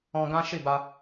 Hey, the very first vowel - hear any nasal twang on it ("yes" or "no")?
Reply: yes